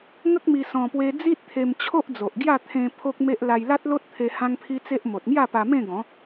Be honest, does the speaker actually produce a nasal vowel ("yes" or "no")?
yes